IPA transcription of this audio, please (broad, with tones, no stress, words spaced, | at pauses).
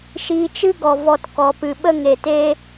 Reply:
ʃiː˧t͡ʃɨ˦ɡɔ˨ vɔ˧tkɔ˨ pɨ˨ɓə˦ŋe˨teː˦